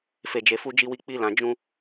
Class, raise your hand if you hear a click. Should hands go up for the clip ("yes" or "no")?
no